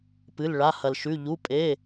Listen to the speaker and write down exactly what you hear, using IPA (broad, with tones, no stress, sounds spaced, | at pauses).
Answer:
p ɨ˩˧˩ l ɭ a˩˧˩ h ɐ˩ l ʃ ʉ˩˧˩ ʎ u˩˧˩ pʼ e˩˧˩